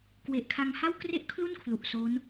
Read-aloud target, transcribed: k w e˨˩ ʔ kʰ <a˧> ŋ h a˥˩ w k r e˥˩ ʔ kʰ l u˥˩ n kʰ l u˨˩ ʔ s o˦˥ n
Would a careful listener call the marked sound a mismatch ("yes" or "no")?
no